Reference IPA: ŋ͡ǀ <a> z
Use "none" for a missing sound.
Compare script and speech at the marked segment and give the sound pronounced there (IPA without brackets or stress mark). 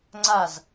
a